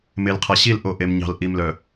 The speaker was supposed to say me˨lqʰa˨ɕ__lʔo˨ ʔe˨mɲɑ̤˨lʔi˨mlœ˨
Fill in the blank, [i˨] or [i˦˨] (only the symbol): i˦˨